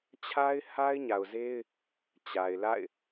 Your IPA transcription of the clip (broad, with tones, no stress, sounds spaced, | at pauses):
t͡ɕʰ a˦ ɪ̯ h a˦ ɪ̯ ɲ a˨ ʊ̯ z e˦ ɪ̯ | t͡ɕ a˨ ɪ̯ l a̰˦˨ ɪ̯